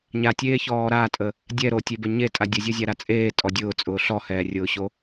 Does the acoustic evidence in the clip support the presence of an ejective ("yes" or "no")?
yes